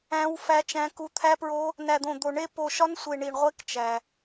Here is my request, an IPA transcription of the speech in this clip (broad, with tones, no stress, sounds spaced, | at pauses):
æ̃˦˥ w f æ˦˥ t͡ʃ æ̃˦˥ k u˦˥ t̪ʰ æ˦˥ p ɹ o˦˥ | n æ˧ d̪ õ˧ d̪ o˧ ɳ e˦˥ p o˧ ʃ ɒ˦˥ n sʷ e˧ ɳ i˧ ɳ ʁʷ e˦˥ k t͡ʃ æ˧